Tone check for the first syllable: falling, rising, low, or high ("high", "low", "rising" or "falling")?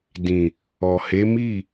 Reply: low